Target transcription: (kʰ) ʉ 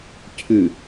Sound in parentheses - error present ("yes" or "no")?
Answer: yes